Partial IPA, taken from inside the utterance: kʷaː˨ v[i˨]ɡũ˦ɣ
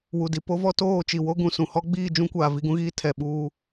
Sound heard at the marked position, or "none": i˦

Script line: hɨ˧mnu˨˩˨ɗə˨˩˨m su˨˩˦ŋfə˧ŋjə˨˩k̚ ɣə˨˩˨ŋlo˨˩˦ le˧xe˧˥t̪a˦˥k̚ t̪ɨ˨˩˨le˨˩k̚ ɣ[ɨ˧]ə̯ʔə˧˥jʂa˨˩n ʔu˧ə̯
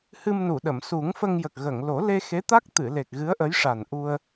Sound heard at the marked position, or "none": ɨ˧˥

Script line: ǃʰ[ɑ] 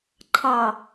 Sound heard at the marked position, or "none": ɑ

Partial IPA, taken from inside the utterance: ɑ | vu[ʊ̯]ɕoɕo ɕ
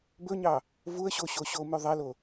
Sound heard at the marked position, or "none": ə̯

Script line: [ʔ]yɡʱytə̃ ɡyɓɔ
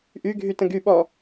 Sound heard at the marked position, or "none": ʔ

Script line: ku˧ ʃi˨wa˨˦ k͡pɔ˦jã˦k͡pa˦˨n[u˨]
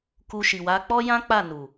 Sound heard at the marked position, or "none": u˨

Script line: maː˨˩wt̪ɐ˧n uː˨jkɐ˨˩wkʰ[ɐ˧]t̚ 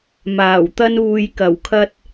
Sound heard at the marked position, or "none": ɐ˧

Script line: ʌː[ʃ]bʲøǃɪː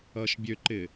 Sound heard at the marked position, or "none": ʃ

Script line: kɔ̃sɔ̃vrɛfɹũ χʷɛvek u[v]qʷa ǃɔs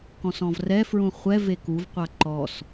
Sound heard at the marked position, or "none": v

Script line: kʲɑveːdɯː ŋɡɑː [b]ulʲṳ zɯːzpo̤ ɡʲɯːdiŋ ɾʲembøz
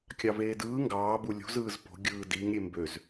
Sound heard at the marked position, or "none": b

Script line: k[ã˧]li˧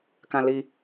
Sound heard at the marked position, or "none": ã˧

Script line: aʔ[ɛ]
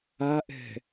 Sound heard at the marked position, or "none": ɛ̤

